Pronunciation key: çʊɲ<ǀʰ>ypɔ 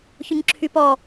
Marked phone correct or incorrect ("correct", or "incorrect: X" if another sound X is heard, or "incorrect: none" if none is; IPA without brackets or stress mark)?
incorrect: ǁʰ